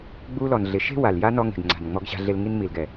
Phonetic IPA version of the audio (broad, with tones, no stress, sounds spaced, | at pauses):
ɡ͡b uː˧ l ɔ˨ n ɮ ɪ˨˦ ʃ e̤˦ w a˨ l j a˦ n ɔ˧ ŋ e̤˨ ɡ ŋ͡ǀ a̤˨ n ŋ͡m ɔ˧ ɡ ɕ a̤˧ ɮ e˧ l ŋ i˧ n m i˨ l ɡ ɛ˨